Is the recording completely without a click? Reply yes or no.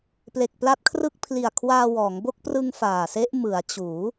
yes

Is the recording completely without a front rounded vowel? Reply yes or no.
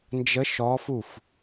yes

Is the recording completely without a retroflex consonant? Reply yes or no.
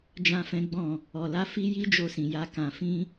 yes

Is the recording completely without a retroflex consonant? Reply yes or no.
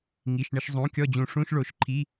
no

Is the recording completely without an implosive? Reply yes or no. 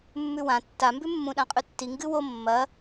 no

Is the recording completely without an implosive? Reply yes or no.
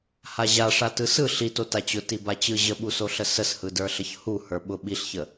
no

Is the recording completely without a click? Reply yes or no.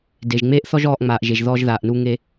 yes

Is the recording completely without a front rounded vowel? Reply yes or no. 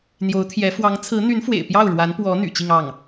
no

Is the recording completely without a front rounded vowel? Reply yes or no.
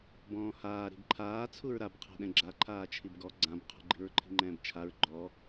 yes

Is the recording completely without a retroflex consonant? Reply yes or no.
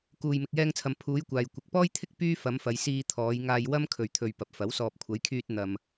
yes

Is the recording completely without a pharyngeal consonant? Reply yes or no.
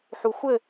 no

